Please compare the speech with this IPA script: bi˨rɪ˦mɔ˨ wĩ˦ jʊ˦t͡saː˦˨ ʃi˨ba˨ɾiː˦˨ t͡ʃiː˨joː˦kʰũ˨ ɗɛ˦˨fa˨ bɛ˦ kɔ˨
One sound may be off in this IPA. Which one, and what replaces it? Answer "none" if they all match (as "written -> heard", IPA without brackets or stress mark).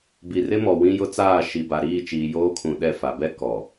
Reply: none